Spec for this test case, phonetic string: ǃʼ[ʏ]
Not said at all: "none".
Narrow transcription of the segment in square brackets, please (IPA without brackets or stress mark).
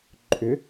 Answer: ʏ